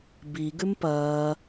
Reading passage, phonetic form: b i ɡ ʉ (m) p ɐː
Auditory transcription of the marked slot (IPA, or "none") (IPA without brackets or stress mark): m